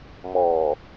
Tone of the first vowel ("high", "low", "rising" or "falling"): low